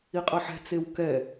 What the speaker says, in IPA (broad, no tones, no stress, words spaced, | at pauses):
iqʼʌħɛ̤ t͡sewkɛ